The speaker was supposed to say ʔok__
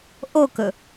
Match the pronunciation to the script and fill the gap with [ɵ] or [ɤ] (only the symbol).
ɵ